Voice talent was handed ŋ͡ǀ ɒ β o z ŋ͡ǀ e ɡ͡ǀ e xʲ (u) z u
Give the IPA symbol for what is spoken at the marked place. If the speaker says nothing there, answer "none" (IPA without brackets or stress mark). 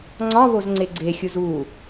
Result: u